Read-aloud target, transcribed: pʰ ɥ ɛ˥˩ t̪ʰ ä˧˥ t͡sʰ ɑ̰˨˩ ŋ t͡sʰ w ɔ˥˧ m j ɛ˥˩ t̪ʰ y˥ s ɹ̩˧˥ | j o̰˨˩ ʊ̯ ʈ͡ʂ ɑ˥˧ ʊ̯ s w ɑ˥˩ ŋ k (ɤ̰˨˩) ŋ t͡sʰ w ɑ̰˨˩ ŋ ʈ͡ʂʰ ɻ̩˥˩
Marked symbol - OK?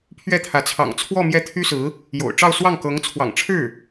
no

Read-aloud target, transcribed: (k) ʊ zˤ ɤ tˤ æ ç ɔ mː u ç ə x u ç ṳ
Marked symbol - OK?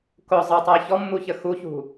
yes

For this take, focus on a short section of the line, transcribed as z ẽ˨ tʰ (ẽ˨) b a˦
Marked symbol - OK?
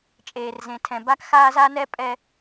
no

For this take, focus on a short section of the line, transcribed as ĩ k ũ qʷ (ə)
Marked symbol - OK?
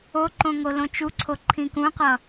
no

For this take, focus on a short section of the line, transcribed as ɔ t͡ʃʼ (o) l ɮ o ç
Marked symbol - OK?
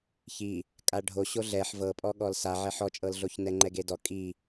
no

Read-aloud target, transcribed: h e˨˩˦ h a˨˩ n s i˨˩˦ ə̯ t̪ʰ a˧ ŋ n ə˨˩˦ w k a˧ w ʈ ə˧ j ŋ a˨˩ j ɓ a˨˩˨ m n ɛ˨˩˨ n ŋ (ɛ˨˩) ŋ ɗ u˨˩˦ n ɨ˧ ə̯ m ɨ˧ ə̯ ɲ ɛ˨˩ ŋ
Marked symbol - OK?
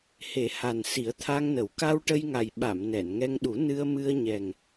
no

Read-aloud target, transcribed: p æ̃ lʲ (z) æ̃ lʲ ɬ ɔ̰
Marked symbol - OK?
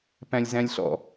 yes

